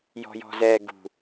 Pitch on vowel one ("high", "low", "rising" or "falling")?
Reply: low